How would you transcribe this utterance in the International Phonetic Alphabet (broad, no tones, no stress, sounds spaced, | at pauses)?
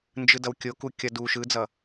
n d͡ʒ ɯ d ʌ w kʲ o k u kʲ ʌ d u ʃ ɯ d͡z ʌ